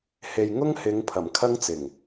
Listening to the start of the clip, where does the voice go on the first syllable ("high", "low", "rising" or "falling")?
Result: low